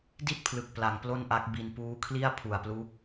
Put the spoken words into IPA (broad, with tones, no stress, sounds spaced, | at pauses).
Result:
d i˥˩ t̚ pʰ l ɯ˨˩ k̚ p l a˨˩ ŋ p l o˥˩ n ʔ a˦˥ k̚ b i˧ n p uː˦˥ kʰ l i˥˩ a̯ pʰ u˨˩ a̯ p l uː˦˥ k̚